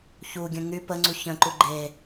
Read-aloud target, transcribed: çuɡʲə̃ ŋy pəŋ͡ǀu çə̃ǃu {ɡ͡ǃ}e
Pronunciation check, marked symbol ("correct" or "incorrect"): correct